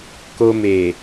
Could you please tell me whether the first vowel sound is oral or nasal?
oral